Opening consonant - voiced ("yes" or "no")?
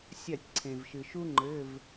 no